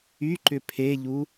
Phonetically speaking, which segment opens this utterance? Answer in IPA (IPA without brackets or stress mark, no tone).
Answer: y